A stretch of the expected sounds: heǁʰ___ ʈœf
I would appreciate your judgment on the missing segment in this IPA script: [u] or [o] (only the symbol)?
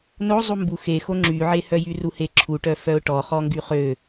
u